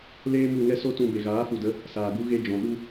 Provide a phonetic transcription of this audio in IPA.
leː˦mu˦˨ ŋɛ˦so˦tũ˧ be˨ɣaː˨˦fu˨də˨˦ | saː˨ɡu˦ ɣe˧d͡ʒɔ̃˨ ɗu˦

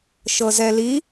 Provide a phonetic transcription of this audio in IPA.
ʃɤzɛli

